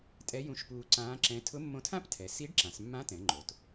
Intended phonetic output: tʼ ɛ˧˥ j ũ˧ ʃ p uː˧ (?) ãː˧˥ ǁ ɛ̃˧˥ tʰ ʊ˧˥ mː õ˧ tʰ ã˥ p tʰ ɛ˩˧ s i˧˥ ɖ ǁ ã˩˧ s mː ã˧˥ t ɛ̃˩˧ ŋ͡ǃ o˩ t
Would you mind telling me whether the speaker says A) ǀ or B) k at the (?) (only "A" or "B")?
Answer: A